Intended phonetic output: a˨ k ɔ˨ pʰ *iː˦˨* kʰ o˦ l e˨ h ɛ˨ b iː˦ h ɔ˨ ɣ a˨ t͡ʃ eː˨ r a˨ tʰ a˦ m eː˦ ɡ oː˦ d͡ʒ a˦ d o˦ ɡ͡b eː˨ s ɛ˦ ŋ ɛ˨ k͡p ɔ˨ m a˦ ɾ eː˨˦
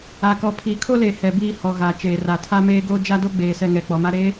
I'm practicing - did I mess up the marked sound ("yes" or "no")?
yes